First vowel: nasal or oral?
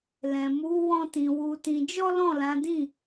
nasal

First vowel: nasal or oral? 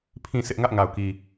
nasal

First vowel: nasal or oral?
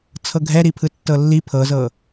oral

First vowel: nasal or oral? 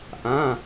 nasal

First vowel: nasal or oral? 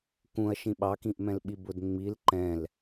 nasal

